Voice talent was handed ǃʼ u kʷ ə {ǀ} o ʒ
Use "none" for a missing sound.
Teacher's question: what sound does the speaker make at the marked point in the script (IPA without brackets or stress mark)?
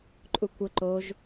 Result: ǃ